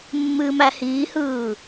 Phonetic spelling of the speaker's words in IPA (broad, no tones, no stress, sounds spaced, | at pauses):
mː ɨː m æ h iː h ɯː